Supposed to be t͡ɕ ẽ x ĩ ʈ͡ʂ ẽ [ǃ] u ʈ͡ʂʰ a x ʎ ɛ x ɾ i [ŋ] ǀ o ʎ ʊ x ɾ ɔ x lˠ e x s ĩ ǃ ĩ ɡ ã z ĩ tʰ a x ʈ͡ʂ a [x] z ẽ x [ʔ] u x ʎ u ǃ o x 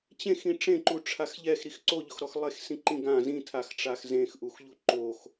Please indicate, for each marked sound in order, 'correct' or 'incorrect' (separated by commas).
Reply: correct, incorrect, correct, correct